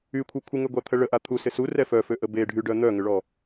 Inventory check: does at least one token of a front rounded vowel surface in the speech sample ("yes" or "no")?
yes